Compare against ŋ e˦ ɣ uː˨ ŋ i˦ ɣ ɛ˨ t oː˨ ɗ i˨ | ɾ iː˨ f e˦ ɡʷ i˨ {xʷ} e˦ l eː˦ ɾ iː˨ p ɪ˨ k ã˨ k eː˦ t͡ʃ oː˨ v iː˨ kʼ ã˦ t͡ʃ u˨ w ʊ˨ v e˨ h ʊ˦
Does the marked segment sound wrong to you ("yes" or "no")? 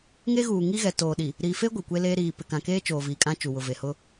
yes